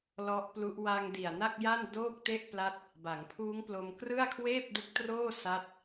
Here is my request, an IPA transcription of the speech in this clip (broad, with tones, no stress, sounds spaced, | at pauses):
l ɔ˦˥ ʔ p l u˦˥ ʔ w a˧ ŋ d i˨˩ a̯ n a˥˩ k̚ j a˥˩ n d oː˥˩ k̚ t e˥˩ ʔ p l a˦˥ t̚ | b a˩˦ ŋ pʰ uː˦˥ ŋ p l o˧ m k r ɯ˥˩ a̯ kʰ w eː˥˩ p̚ d ɯ˦˥ k̚ t r oː˥˩ s a˥˩ t̚